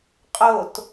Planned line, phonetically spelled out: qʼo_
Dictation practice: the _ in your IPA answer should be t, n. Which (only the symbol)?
t